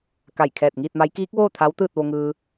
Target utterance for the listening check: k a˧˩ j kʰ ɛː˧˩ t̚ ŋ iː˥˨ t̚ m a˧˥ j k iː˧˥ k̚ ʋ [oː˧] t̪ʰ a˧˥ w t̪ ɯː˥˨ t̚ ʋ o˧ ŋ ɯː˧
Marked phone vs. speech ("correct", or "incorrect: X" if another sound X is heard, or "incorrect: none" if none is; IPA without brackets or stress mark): incorrect: oː˥˨